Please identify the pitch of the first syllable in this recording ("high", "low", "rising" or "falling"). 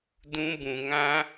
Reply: high